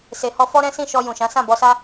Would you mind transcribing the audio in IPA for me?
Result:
se˨ hɔ˧fɔ˦ ɾɛ̃˦ sĩ˦˨ʃɔ˧ jũ˨ʃã˨˦ sã˦˨bɔ˧sa˦

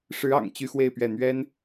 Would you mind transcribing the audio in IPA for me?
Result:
ʂɻ̩˧˥ɑ̰˨˩ŋ t͡ɕy˥˧xwe˥˧ɪ̯pɥɛ˥˩ n̪ɥɛ˥n

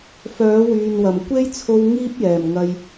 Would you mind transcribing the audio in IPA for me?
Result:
fœː˨˥wyː˨nwɐ˨˩m kʷe˥jt͡sʰo˧w ŋiː˥p̚jɛː˨˩mŋɐ˨j

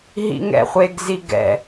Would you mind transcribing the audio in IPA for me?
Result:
ɦḭŋɛ̰χʷeɡ ziɡɛ̰

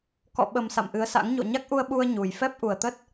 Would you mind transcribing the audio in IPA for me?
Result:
kɔ̰˧˨ɓə˨˩m sa̰˧˨mʔɨ˨˦ə̯sa̰˧˥ŋ ɲo̰˧˨ɲa˦˥k̚ʔu˧ə̯ɓu˧ə̯ ɲu˨˩j fɛ˦˥p̚ʔu˨˩ə̯t̪ə˦˥t̚

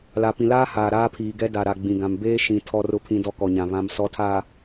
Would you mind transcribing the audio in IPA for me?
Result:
la˨pĩ˨laː˦haː˨ ɾaː˦pʰiː˨ɡɛ˦ da˨ɾa˨ ɡ͡bĩ˨ɡã˨m beː˦ ʃĩ˨ tʰɔ˨rʊ˨pʰĩ˨ dɔ˦kɔ˨ɲã˨ βã˨m sɔ˨˦tʰaː˨

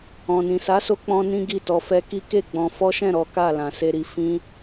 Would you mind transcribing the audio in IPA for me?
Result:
ɔ̃˨nĩ˨sa˨˦so˧ k͡pɔ̃˧ nĩ˦ɡi˦˨tɔ˧fɛ˦ ki˦ke˦˨ɡ͡bɔ̃˧ fɔ˦ʃɛ̃˦˨ ɾɔ˨˦ka˦˨ lã˨se˧ɾi˨ fĩ˧

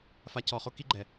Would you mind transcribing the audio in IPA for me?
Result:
fa˧ cʰɔ˨χo˧ki˧ɡ͡ǃɛ˨

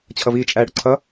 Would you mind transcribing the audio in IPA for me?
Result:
t͡ɕʰʌviːt͡ʃʼæ ɽʊǀʰʌ

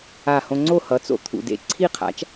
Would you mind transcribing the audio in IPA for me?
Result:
a˧˩hõ˧ŋ͡ǀo˥˨ hʌ˩˥t͡so̰˧˩ t̪ʰṵ˩dḛ˧˩ ǀʰi˥˨qʰa̰˩˥t͡ʃ

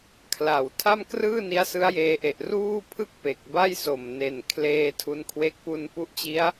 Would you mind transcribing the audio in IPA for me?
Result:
kʰla˨˩w tʰa˥˩mkrɯː˥˩ni˦˥a̯ sɯ˦˥a̯jeː˧ʔe˨˩ʔ ruː˥˩pʰɯ˥˩k̚ pe˨˩k̚ba˥˩jso˨˩m ne˨˩nkʰleː˧ tʰu˧nkʰwe˦˥k̚ pu˧npu˦˥ʔt͡ɕi˦˥a̯

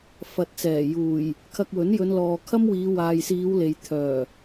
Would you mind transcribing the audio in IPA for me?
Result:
fɐ˨t̚t͡sɛː˨˩juː˨˩j | kʰɐ˧k̚wɵ˨˥n jɵ˨˧nlɔː˨kʰɐ˥m wiː˨˧waː˨jsiː˨˧w le˨j t̪ʰœː˨˩

